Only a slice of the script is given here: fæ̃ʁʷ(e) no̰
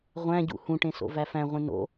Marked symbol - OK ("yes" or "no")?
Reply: no